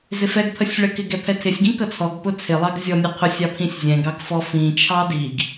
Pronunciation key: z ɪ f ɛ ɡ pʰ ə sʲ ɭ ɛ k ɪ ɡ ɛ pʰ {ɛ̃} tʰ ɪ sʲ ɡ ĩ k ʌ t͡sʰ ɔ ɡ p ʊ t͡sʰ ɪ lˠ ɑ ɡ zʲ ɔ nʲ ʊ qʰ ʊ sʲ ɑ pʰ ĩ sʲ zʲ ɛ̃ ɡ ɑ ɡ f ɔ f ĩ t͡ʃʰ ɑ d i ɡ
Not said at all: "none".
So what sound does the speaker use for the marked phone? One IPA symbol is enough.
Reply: ɛ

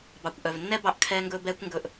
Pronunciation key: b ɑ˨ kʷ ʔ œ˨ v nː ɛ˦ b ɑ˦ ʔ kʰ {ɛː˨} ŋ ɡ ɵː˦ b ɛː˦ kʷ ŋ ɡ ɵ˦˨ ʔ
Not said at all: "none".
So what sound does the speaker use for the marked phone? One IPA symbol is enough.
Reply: ɛː˦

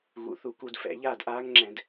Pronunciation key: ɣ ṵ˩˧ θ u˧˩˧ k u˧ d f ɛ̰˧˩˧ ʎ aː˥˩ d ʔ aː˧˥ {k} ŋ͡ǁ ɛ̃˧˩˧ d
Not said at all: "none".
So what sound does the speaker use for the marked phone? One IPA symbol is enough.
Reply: ŋ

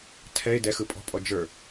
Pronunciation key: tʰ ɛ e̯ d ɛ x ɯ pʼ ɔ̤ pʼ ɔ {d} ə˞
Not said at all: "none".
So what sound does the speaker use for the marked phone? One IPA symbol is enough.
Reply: d͡ʒ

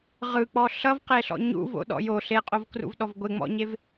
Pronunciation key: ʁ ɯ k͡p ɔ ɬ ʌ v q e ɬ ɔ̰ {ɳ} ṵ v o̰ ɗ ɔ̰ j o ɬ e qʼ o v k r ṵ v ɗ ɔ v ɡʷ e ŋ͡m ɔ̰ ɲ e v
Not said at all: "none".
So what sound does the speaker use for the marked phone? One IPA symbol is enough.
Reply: ɲ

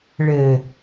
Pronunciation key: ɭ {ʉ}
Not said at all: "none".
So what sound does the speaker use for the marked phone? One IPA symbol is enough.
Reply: ɘ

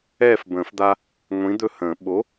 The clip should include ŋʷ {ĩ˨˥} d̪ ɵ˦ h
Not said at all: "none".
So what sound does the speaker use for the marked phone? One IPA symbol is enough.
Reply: ĩ˨˥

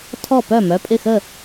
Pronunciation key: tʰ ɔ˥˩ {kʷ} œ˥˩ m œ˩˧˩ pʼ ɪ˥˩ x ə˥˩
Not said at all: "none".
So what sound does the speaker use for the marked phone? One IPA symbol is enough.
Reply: p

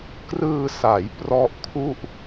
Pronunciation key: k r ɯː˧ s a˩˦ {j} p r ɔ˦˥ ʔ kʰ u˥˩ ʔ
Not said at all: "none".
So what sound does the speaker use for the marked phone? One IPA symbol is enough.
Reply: j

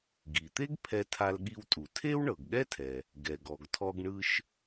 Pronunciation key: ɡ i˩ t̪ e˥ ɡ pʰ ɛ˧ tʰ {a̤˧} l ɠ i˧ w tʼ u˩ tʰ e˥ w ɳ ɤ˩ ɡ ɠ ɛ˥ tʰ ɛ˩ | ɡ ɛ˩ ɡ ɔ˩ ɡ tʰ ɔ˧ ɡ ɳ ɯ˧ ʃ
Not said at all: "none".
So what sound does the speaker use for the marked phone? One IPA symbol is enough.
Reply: a˧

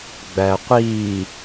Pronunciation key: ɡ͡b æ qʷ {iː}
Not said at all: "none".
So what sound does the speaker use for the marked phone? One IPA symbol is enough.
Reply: iː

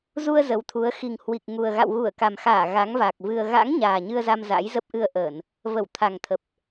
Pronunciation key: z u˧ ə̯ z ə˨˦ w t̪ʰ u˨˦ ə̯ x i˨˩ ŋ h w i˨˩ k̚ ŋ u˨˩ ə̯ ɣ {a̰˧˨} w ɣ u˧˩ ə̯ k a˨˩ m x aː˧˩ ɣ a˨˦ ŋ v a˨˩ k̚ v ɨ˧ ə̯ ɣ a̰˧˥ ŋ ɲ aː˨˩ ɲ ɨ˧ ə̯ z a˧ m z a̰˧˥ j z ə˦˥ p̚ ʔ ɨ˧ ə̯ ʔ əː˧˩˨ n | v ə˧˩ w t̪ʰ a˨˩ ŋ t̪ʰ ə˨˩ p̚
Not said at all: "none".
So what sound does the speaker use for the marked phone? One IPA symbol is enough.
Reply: a̰˧˨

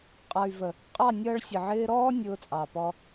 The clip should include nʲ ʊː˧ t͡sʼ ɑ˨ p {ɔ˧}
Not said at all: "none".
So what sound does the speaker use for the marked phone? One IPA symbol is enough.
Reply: ɔ˧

